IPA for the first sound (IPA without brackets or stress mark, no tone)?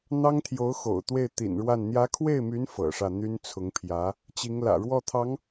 n̪